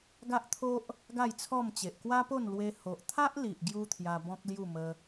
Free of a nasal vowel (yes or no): no